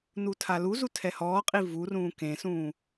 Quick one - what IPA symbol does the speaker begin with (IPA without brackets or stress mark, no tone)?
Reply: n